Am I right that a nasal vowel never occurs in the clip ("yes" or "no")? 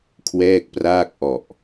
yes